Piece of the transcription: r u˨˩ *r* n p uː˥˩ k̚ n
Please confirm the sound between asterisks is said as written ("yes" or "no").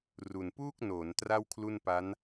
no